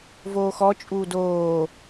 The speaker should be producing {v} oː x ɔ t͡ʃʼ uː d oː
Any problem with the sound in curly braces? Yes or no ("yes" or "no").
no